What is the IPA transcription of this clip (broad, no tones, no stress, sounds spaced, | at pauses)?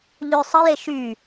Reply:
ʎ ø sˤ ə j e ʃ y